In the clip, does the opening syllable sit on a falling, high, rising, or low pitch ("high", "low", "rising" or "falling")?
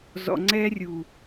low